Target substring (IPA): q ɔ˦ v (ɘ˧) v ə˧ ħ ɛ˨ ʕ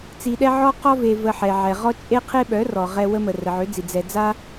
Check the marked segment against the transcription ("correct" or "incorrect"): incorrect